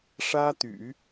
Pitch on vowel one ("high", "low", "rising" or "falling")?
high